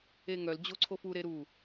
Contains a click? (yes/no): yes